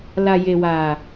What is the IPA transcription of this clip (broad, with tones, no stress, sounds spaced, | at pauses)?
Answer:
l a˨ j e˨ w a˨